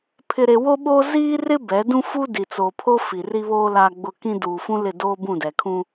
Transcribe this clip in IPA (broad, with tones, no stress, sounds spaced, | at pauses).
pʰ ɪ˨ ɾ e˨ w o˦ ɓ oː˦ z iː˦ r ɪ˦ b ɛ˨˦ d ũ˦ f uː˦ d i˨ t͡s oː˨ pʰ o˦ f i˨ r i˦ β oː˦ l a˨ ɡ͡b ʊ˨ k ĩ˦ d uː˨ f ũ˦ l ɪ˦˨ d oː˦ b ũ˦˨ d ɛ˨ kʰ ũ˦